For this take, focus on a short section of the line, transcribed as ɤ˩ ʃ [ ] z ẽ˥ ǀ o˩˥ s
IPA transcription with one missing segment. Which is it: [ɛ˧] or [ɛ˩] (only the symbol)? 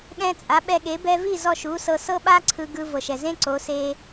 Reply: ɛ˩